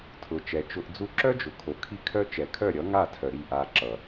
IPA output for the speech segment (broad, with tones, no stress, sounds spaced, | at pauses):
tʰ ʊ˨ t͡ʃ ɛ˨ t͡ʃ ʊ˧ ʔ d͡z u˧ ǁ œ˦ d͡ʒ ʊ˨ kʰ o˨ kʰ i˦ kʰ œ˦ t͡ʃ ɛ˨ kʰ œ˦˨ ɾʲ ʌ˨˦ ŋ a˦˨ tʰ œ˨ ɾ i˦˨ ʔ a˧ ǁ ʌ˨